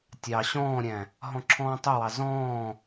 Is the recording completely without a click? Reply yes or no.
no